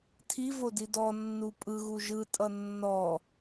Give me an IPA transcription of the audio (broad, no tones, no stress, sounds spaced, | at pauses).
tʰ i v o d i d ɔ nː u pʼ ɯ ɣ u ʒ ɯ tʼ ʌ nː ɔ